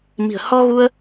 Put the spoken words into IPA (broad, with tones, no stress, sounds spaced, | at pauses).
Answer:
m i̤˨˩ ə̯ h ɔ˧ ɣ u˧ ə̯